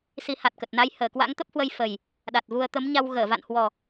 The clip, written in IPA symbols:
s i˨˦ h a˨˩ t̚ k ə˨˩ t̚ n a˧ j h əː˧˩ k w a̰˧˥ ŋ t̪ ə˦˥ p̚ h w ə˧ j f ə˨˩ j | ɗ a˨˩ t̚ v u˧ ə̯ t̪ ə˨˦ m ɲ a˧ w ɣ əː˧˩ v a̰˧˨ n h w ɔ˨˩

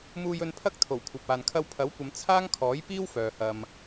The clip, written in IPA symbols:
m uː˧ j ɵ˧ n pʰ ɐ˥ k̚ t̪ʰ o˨˩ w kʷʰ ɐ˨ p̚ aː˨ n kʰ ɐ˥ w pʰ ɐ˨˥ w kʷ ɐ˨˧ m t͡sʰ aː˥ ŋ kʰ ɔː˨˥ j p iː˥ w f œː˨ h ɐ˧ m

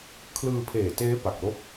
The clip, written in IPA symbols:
kʰ l ɯː˧ pʰ eː˨˩ t eː˦˥ p a˨˩ k̚ l o˥˩ k̚

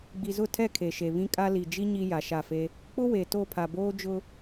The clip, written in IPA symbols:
ɡ͡b i˨ z ʊ˦˨ tʰ ɛ˦˨ kʰ e˨ ʃ e˨ β ĩ˦ kʼ a˦ l i˨ d͡ʒ i˦ ɲ i˦ j a˨ ʃ a˦˨ f e˦ | k͡p ʊ˦ w e˨ t o˦˨ pʰ a˨ b oː˦ d͡ʒ ʊ˦

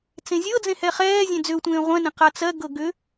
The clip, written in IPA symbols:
t͡s ẽ zʲ ɤ d͡z ẽ h ɛ χ ɛː zʲ ẽ d͡z ʏ ʊ̯ tʷ ẽː ʁʷ ɛ̃ n ẽ q a t͡s ɜ ɡ ɤ ɡ ʏ

